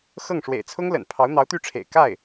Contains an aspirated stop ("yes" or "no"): yes